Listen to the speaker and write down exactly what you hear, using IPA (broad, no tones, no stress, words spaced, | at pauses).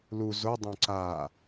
lu zo dˤõǀa